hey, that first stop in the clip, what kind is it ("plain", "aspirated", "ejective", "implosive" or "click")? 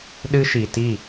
implosive